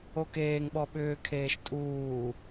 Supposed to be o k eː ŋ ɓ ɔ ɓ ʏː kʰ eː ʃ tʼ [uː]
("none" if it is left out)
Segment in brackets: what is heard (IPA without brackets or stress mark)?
uː